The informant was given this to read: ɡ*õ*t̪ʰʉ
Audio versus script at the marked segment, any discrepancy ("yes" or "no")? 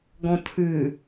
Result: yes